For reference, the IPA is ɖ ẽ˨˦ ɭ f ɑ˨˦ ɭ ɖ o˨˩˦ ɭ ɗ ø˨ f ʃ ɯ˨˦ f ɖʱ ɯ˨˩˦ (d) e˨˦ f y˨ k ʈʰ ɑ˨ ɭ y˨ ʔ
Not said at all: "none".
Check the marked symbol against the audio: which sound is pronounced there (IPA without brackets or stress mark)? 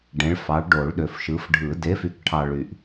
d